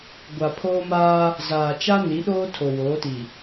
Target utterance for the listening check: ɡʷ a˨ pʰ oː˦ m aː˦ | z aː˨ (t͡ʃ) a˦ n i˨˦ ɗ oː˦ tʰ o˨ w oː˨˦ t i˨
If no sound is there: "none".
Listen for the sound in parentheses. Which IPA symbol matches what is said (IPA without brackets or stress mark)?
t͡ʃ